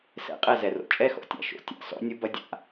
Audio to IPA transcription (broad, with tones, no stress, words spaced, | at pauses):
sɛ̰˨˦ qʼɛ˨ zɛ˨ro̰˨ t͡ʃʼɛ˦˨xɔ̰˨tʲa̰˦ ʃo̰˨˦ tʲa̰˨ sɔ̰˦nʲu˦bɐ˦dʲa̰˦